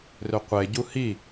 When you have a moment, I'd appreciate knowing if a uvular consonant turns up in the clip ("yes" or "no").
yes